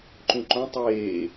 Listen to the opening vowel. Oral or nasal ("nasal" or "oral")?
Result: nasal